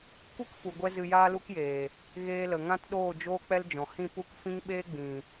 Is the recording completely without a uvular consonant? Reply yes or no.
yes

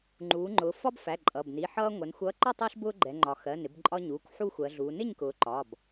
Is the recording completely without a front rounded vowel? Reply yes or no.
yes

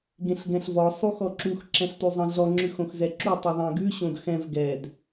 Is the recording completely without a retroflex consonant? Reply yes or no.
yes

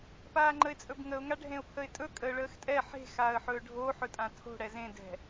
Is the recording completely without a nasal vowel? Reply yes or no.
no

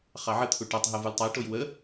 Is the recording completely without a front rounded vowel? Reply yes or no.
yes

